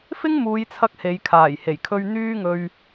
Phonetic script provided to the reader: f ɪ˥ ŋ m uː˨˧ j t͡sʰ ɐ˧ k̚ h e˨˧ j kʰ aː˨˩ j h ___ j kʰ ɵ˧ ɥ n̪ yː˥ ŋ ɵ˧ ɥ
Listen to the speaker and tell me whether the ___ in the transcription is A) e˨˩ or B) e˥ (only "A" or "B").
A